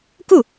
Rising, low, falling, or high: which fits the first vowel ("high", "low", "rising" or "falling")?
falling